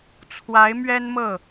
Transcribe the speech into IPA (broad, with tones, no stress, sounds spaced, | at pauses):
t͡sʰ w a˧˥ ɪ̯ m ɥ ɛ˥ n m ɤ˥˩